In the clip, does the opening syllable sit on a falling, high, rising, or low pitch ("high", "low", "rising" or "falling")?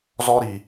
high